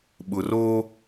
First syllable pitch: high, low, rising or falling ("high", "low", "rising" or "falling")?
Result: low